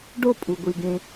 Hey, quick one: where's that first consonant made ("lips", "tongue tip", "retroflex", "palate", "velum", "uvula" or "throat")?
retroflex